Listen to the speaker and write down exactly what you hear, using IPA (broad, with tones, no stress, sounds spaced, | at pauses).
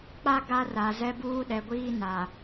k͡p a˦ ɡ a˦ r a˨ z ɛ˦ b uː˦ ɗ ɛ˨ ɡʷ iː˦ n a˨